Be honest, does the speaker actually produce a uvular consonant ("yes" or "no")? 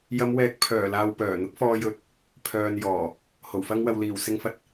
no